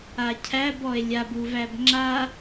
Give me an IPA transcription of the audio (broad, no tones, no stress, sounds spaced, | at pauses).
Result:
a cʰ æ b ɔ e̯ lʲ a b u v æ b ŋ͡ǁ a